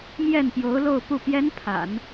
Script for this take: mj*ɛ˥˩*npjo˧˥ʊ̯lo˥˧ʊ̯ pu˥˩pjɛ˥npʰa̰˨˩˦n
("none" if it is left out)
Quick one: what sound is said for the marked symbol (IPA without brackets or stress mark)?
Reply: ɛ˥˩